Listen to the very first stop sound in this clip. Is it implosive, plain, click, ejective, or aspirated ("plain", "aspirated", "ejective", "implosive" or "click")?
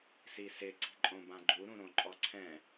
click